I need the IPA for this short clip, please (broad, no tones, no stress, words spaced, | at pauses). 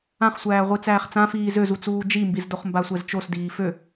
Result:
ãχsʷæːʁʷi t͡sæːχt͡sãfiː zøzut͡suː d͡ʒimbizdoχ mbasʷɛzt͡ʃosdiː fø